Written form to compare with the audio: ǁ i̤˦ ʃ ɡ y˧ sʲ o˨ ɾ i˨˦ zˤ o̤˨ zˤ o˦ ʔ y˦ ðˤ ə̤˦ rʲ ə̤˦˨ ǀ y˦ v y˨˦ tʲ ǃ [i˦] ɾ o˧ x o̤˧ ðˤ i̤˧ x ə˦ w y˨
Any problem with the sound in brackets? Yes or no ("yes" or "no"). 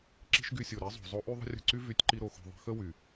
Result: no